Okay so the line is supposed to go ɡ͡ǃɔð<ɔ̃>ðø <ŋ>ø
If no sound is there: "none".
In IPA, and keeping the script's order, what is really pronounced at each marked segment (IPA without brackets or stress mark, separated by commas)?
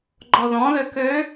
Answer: ɔ̃, k